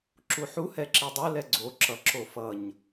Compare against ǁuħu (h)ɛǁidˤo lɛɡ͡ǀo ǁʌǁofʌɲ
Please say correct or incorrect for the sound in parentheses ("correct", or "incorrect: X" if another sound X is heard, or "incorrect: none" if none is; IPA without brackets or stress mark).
correct